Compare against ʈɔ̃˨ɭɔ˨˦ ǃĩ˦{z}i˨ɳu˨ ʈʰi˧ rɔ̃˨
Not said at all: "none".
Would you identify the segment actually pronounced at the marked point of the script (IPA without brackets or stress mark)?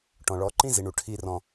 z